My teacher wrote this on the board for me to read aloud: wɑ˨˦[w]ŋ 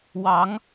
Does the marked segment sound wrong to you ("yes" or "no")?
yes